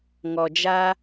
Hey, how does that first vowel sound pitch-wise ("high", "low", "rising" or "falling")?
low